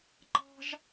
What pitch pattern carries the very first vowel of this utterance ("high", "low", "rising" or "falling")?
high